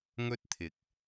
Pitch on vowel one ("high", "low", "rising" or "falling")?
high